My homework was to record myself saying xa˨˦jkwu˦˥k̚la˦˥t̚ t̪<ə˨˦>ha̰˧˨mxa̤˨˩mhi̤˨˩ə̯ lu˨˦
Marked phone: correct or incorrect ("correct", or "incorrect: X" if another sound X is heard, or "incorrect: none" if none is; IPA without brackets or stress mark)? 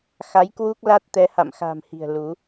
incorrect: ɛ˨˦